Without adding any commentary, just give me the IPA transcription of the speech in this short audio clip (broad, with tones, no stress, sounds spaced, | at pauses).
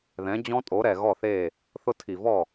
ð ɛ̃˩˥ d͡ʑ ɔ̃˦˥ tʼ o˩˥ ɾ ɛ˨˩ ɣ ɔ˥˩ θ e˥˩ | θ ʊ˦˥ tʰ i˨˩ v ɔ˥˩